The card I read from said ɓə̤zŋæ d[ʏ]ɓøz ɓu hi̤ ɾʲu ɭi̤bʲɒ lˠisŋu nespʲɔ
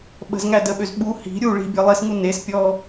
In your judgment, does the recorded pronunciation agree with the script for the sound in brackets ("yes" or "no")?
no